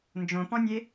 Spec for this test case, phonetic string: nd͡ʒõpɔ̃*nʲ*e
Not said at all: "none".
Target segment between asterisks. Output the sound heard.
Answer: nʲ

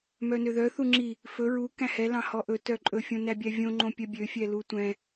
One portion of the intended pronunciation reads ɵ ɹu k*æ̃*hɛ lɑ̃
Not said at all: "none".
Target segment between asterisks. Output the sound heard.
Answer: æ̃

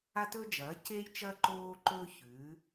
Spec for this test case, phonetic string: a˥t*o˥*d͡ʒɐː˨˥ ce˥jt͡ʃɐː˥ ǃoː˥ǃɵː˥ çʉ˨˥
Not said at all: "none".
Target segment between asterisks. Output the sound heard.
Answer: ɵ˥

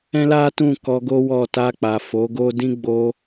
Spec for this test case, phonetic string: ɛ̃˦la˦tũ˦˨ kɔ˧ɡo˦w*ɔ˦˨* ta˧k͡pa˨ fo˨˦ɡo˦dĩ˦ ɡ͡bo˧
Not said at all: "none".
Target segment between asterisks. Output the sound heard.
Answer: ɔ˦˨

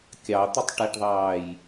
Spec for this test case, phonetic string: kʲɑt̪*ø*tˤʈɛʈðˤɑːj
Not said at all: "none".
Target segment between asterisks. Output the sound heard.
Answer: ə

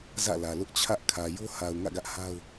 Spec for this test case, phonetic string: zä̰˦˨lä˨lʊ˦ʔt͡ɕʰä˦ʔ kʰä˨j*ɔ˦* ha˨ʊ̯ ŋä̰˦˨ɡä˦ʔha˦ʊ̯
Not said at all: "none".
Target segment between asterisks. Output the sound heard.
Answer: o˦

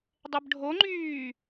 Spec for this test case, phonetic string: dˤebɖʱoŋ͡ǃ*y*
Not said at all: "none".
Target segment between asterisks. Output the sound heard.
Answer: yː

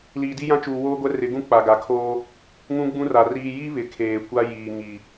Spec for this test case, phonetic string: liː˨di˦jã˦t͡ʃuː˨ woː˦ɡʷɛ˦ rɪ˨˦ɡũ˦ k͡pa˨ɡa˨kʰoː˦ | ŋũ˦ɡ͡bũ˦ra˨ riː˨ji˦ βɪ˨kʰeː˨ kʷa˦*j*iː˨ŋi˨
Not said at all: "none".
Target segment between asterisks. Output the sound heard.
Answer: j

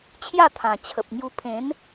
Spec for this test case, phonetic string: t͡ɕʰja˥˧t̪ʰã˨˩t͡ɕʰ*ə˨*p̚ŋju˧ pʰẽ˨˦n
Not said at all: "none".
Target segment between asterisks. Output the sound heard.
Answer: ə˨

